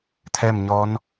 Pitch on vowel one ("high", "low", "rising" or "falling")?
falling